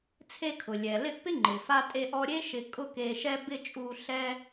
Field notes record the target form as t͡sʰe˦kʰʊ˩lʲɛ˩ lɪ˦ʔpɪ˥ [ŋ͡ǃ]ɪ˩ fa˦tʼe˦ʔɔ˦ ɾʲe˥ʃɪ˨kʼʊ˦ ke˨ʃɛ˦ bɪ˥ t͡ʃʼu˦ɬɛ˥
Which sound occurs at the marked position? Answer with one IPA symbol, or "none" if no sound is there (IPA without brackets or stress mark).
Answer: ŋ͡ǃ